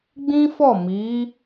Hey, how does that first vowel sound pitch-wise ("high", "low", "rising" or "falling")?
high